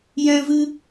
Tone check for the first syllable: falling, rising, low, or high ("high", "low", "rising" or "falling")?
high